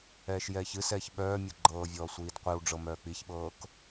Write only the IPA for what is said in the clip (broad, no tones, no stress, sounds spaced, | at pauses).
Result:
ɛː ʃ j ɛː ç ɨ s ɛː ç ɓ œː mʲ ɤ ɡ͡ǃ ɤː vʲ ɔː sʷ iː d qʷ i w ɖ͡ʐ ɤ m œː k͡p i ç ɓ ɤː k